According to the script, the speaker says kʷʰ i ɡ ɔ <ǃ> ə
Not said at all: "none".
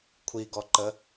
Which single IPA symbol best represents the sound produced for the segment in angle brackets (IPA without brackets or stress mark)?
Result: ǃ